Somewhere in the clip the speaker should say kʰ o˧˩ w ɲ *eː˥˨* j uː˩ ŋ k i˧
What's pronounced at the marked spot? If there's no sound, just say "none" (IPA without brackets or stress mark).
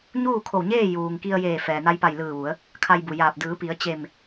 eː˥˨